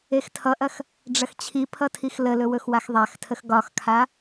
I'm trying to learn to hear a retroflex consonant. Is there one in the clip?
yes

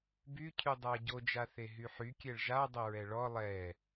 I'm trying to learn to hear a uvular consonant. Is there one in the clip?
no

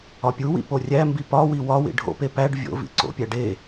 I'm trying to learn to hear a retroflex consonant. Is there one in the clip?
yes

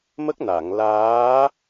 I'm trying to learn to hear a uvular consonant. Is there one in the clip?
no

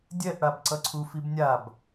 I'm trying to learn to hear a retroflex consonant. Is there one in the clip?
yes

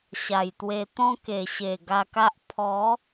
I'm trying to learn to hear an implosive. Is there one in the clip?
no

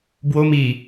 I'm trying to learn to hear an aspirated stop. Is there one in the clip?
no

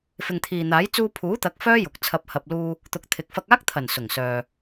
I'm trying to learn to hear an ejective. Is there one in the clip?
no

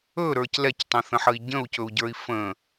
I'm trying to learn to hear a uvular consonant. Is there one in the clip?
no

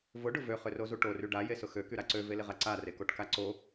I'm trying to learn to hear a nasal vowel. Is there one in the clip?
no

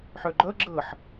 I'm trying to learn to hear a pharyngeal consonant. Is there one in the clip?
yes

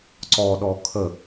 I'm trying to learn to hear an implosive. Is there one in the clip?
yes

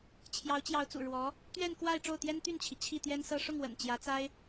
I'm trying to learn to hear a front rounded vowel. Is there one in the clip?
yes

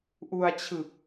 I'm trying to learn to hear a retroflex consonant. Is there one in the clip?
no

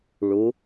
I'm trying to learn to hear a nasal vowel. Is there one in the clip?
no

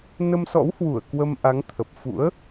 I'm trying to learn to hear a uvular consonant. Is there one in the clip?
no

